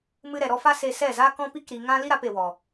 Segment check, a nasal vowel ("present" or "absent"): present